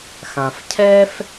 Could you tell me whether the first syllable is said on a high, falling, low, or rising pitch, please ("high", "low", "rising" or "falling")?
low